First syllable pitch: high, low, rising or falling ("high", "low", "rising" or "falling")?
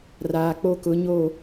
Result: low